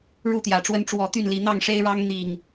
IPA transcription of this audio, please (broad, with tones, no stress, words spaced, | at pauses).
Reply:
ɻu˥˨t̪jä˨˩ʈ͡ʂwə˦n ʈ͡ʂwɔ˨˦t̪y˥˨nli˨˦ n̪ɑ˥˨ŋʂe˦ɪ̯ɻɑ˦ŋ n̪i˨˩ŋ